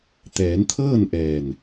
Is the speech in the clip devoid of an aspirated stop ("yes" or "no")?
no